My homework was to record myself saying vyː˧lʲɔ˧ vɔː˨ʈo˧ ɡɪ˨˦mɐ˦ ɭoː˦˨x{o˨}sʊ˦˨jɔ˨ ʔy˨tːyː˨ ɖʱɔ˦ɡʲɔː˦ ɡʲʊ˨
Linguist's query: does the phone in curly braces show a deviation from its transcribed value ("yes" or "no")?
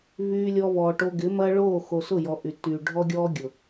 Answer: no